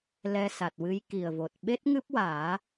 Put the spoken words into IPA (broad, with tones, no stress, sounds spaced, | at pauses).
l ɛ˧ s a˨˩ t̚ w ɨ˧˥ j k i˨˩ ə̯ v o˨˩ t̚ ɓ e˦˥ t̚ ŋ ɨ˦˥ p̚ w aː˨˩˦